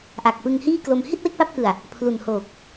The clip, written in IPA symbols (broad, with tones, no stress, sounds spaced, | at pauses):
ʔ a˨˩ k̚ p ɯ˧ ŋ h iː˥˩ k l o˧ m h i˥˩ t̚ w e˥˩ k̚ p a˦˥ p̚ k ɯ˨˩ a̯ | pʰ l u˨˩ n h oː˨˩ k̚